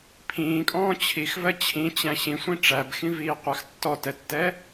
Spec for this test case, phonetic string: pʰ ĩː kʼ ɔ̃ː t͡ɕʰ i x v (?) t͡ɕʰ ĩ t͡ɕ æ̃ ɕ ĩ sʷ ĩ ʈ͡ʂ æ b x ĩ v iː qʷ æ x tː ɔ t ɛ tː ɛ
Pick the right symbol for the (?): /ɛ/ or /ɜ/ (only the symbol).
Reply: ɜ